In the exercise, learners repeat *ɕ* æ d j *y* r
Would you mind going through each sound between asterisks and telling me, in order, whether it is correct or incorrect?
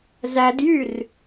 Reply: incorrect, correct

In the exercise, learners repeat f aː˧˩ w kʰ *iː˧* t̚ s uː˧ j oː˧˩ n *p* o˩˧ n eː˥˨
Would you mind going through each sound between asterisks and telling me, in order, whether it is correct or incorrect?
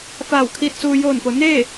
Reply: correct, correct

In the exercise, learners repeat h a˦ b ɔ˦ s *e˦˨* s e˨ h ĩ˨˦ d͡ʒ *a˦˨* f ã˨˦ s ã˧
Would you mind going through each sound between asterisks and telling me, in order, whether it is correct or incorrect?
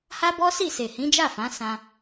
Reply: incorrect, correct

